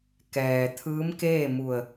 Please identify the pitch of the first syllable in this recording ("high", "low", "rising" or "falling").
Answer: low